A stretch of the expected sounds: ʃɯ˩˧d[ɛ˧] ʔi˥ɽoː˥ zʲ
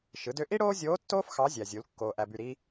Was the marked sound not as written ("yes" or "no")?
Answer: yes